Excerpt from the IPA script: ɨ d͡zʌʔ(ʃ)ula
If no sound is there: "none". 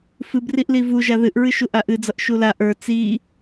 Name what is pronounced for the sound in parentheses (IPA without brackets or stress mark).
ʃ